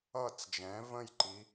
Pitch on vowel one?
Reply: falling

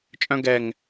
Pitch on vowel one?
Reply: high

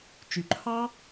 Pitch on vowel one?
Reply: low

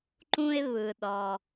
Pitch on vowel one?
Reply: high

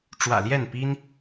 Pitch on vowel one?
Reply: low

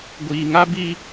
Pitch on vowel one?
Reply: low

